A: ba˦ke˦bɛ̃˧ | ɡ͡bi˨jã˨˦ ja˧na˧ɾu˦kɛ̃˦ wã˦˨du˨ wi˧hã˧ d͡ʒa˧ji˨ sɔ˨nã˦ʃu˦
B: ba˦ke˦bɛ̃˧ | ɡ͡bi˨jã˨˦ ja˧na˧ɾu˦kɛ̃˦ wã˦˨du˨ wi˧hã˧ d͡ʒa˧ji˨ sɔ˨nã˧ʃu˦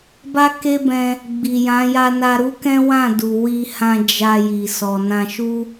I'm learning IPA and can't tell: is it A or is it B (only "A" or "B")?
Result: B